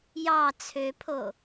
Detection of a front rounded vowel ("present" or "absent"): present